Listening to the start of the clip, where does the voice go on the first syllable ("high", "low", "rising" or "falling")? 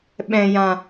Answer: low